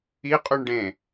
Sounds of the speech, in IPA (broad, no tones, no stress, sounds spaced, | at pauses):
i qʼ ʉ ɳ ɖ ẽ